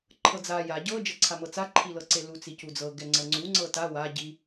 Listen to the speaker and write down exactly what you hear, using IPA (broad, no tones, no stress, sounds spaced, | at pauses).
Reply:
ǃʰ ɤ d͡z a j a ɟ ɤ d͡ʒ ɤ ǀʰ a m ɤ t͡s a ǃʰ i l ɤ ǀ e l u t͡s i c u d͡z ɤ ɡ ɛ ŋ͡ǀ ɤ ŋ͡ǀ u ŋ͡ǀ ɤ t a w a ɟ i